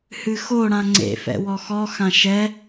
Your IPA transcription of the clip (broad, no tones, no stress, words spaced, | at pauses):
hɨxo ɽãŋ͡ǀḛfɛ̰wɔ xɔxã ʃɛ